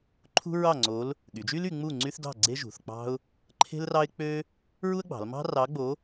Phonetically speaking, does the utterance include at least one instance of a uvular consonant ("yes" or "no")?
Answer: no